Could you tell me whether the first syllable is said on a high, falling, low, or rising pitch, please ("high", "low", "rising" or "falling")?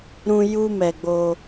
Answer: high